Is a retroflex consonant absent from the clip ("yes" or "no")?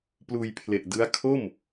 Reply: yes